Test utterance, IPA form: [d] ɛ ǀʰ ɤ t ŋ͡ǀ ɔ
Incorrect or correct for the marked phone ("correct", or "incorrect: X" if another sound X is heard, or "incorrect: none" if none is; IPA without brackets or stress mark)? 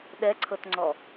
incorrect: ɗ